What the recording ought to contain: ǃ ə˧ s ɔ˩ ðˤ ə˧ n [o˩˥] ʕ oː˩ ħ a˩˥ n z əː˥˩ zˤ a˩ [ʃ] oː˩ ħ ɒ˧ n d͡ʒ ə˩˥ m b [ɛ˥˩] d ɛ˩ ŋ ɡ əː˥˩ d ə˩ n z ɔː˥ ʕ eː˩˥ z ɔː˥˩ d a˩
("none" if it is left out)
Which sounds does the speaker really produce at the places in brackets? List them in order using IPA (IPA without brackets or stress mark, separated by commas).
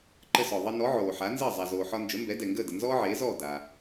ɔ˩˥, z, ɛ˩˥